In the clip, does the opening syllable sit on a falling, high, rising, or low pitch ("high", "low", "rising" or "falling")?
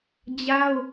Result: high